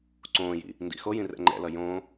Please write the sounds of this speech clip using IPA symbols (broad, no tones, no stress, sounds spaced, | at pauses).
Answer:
ǀ õː j ḭ | n d ḭ x o j ĩ r ɛ̰ ŋ͡ǃ ɛ̰ l ʌ j õ